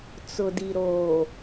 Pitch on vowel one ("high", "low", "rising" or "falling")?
low